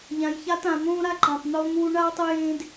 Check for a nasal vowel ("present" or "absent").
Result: present